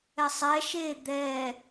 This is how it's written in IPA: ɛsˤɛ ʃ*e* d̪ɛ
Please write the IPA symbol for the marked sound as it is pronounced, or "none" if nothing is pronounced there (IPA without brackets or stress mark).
e